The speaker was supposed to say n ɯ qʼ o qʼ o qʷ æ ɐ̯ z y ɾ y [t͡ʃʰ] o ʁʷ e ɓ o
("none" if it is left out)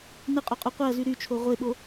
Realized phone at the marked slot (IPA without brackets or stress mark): t͡ʃʰ